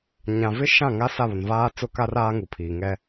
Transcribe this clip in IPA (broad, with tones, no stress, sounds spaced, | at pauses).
ɲ ã˨ v ɪ˦ ʃ ã˦˨ ŋ a˦ s a˦˨ β ʊ˨ n v aː˦ t͡s ʊ˦ k a˦ r aː˦ ŋ u˨ pʰ iː˨ ŋ ɛ˦